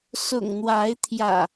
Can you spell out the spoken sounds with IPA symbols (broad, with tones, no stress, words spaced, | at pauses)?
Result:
sʊ̰˨˩ŋn̪wa˨˦ɪ̯t̪ʰjä̰˨˩